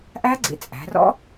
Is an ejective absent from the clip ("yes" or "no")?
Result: no